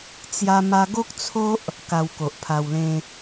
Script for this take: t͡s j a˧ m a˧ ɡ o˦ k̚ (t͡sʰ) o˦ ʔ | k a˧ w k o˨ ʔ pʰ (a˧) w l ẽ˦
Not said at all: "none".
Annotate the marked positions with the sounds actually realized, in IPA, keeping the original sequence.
t͡sʰ, a˧

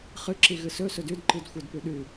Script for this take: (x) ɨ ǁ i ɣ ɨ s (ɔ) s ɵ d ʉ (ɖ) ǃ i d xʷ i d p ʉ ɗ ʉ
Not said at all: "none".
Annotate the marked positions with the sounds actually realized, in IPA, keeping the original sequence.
χ, ɵ, d

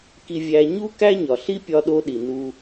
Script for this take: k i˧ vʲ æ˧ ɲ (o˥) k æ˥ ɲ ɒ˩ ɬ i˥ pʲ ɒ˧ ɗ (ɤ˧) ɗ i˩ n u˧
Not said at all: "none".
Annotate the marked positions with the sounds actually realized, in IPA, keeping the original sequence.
u˥, o˧

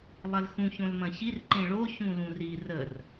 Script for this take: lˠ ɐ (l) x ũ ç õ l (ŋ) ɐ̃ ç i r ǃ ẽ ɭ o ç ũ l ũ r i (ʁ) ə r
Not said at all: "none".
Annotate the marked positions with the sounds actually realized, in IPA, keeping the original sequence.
l, m, r

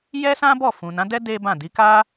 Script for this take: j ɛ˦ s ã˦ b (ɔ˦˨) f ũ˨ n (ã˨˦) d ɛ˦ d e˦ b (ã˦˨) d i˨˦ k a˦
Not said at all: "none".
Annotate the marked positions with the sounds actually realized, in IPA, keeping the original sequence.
ɔ˦˨, ã˨˦, ã˦˨

